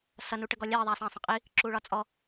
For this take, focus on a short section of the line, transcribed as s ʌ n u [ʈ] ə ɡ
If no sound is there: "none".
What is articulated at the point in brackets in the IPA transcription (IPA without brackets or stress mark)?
ʈ